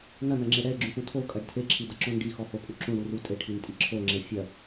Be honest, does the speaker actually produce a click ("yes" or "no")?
yes